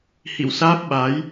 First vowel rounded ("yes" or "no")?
no